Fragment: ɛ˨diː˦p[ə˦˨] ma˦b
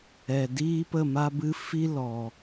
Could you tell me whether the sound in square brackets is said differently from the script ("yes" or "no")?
no